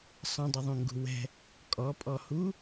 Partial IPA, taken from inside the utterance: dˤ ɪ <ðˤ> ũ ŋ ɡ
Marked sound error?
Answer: no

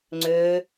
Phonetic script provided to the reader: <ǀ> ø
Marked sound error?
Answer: yes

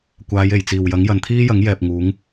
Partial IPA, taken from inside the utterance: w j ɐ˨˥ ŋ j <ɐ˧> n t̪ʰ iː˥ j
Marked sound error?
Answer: yes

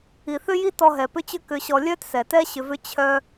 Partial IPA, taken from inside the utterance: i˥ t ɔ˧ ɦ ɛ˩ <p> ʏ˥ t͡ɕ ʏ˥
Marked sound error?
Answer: no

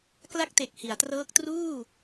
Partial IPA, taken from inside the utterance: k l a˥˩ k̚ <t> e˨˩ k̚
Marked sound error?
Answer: no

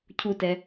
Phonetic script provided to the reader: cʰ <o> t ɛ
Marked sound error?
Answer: yes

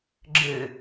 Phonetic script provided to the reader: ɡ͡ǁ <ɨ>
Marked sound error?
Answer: no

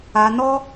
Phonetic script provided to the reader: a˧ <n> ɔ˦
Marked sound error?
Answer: no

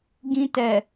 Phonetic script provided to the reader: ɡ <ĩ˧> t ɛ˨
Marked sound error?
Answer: no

